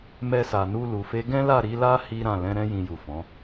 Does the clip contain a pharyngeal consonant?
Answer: no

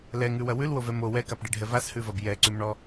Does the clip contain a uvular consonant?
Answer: no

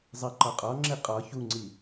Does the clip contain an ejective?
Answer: yes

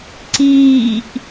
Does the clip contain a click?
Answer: yes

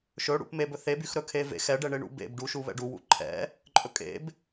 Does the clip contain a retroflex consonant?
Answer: yes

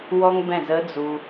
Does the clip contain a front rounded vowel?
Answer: no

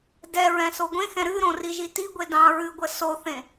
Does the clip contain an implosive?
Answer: no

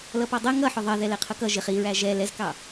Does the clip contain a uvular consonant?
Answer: yes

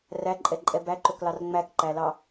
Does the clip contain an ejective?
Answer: yes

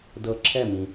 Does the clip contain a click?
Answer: yes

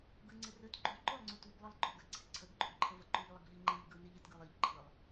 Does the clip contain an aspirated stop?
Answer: yes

